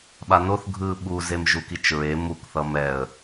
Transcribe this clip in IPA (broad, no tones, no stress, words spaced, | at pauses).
ɓanoθ ɡʱɯ ɓuzem ʒukit͡ʃɹe mukθʌ mɛə̯